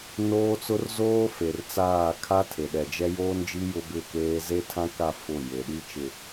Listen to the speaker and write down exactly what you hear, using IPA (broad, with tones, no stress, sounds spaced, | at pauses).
n oː˦ t͡s ʊ˦ r z oː˦ f e˨ r t͡s aː˦˨ kʰ a˦ tʰ e˨ ɗ ɛ˨ d͡ʒ ɛ˦ j oː˦ n d͡ʒ i˦ j ʊ˦ b ɪ˦˨ k eː˦ z e˦ tʰ ã˦ k a˦˨ f ʊ˦˨ j e˨ ɗ i˦ t͡ʃ ɪ˨